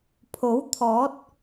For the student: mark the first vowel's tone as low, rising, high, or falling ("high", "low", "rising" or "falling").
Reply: rising